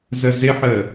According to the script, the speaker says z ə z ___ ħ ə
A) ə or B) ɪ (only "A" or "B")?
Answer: B